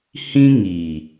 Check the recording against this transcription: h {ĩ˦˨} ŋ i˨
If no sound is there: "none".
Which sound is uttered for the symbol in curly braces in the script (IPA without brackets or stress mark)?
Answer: ĩ˦